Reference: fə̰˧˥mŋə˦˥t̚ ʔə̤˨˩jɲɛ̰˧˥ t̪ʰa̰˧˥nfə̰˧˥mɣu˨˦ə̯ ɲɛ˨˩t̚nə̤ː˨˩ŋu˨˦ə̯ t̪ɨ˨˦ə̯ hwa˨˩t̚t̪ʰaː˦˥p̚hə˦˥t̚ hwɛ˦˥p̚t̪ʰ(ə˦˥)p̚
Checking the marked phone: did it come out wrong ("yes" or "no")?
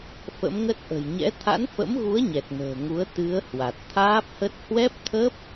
no